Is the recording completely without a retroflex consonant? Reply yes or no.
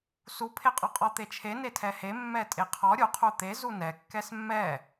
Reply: yes